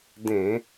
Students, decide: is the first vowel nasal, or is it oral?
nasal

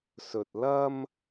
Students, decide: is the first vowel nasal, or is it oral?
oral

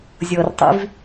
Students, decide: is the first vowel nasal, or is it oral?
oral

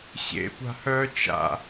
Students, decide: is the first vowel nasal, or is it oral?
oral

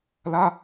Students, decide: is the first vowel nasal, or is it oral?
oral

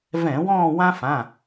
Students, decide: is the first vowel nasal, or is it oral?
nasal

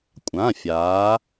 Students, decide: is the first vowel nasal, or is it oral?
nasal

